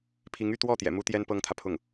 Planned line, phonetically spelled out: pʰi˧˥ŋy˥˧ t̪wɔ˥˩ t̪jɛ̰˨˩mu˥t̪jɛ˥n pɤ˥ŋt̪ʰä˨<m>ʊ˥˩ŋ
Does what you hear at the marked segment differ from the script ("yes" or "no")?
yes